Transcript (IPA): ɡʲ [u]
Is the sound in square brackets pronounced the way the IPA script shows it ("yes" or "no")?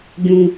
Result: no